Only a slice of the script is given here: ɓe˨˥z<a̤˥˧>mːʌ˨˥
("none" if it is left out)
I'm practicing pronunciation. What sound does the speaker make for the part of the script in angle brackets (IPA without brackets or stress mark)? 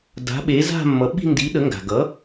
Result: a̤˥˧